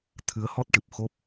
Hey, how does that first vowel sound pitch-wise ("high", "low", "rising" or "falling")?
rising